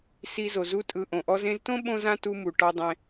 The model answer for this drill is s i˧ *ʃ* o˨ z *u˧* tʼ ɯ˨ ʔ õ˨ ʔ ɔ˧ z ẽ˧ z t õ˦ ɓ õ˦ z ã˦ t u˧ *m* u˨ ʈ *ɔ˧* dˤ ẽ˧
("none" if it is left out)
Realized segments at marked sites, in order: z, u˧, m, ɔ˦

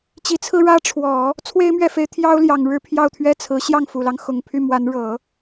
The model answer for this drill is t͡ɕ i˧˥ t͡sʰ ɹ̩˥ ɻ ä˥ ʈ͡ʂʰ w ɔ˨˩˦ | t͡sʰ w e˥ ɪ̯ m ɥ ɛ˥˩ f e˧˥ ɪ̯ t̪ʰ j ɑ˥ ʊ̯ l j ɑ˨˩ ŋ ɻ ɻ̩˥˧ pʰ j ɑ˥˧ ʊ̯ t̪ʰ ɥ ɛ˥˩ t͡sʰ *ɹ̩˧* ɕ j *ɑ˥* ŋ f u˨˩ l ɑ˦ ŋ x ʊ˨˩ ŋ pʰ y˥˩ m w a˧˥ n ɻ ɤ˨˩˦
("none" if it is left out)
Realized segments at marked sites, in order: ɹ̩˧˥, ɑ˥˩

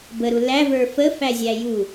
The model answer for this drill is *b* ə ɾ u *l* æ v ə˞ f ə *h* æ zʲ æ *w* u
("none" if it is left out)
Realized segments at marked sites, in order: b, l, f, j

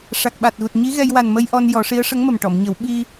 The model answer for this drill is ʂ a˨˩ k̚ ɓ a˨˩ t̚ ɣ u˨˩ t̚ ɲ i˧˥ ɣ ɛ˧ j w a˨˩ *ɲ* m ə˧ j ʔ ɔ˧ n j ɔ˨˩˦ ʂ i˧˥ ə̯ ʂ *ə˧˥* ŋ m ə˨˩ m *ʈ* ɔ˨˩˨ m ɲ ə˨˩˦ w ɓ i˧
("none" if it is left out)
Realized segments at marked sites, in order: n, ə˧˥, ʈ

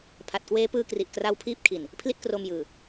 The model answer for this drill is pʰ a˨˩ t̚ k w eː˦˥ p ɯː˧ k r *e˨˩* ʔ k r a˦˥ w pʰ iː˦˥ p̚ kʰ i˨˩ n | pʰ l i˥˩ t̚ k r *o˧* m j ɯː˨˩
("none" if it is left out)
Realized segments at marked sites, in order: i˨˩, o˧

